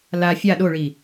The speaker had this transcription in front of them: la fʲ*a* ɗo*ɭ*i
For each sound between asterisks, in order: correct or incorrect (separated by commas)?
correct, correct